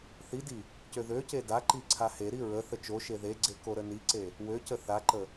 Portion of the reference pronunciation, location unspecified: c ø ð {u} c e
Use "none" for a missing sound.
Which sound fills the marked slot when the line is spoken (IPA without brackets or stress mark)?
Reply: ø